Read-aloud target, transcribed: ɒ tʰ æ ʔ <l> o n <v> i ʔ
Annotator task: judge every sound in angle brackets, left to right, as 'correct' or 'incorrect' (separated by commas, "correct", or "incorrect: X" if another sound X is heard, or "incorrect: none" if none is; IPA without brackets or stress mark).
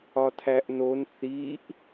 incorrect: n, incorrect: θ